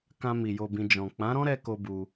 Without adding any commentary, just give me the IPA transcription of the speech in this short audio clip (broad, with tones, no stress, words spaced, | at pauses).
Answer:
kã˧mi˨ jo˨bĩ˨ d͡ʒɔ̃˨ k͡pã˨˦ɾɔ̃˦ɾɛ˧ ko˦bu˧